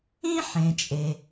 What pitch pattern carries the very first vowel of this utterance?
high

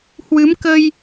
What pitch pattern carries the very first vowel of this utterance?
rising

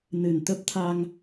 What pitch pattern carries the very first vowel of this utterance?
low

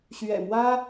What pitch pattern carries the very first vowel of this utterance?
low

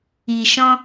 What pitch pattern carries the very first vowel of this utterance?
low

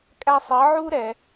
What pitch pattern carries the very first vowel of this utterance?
high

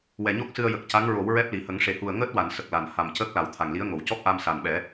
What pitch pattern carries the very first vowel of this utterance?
low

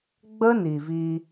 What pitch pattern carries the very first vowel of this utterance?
high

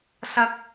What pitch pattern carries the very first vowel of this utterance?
high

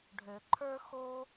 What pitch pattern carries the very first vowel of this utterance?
low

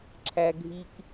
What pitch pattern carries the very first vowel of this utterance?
high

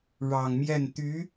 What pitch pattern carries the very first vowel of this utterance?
low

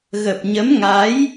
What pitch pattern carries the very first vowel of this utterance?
low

